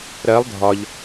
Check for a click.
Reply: absent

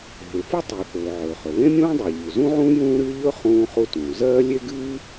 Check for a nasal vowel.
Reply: present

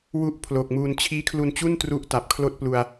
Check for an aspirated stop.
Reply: present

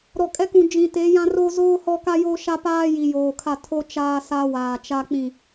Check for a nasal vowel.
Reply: present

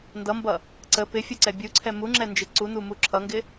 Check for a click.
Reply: present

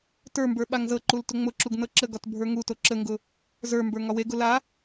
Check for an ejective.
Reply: absent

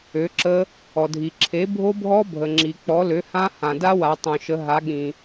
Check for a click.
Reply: present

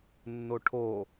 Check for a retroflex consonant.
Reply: present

